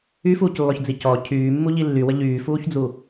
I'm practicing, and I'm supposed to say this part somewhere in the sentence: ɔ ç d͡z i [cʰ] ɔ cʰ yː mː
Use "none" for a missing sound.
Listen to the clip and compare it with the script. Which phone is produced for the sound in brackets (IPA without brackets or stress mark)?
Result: c